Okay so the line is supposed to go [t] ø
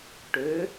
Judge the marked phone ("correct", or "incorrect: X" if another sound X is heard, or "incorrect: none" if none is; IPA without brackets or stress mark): incorrect: ʈ